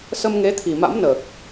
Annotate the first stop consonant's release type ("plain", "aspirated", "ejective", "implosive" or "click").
aspirated